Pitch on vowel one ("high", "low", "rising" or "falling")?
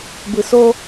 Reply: low